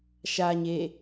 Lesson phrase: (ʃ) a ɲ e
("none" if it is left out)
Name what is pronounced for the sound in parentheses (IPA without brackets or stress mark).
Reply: ʃ